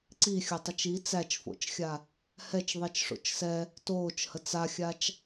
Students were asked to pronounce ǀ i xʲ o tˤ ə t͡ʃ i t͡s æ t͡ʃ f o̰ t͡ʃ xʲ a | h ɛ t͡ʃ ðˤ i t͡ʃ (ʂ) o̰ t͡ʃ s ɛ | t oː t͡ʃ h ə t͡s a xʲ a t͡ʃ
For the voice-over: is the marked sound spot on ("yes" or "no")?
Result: yes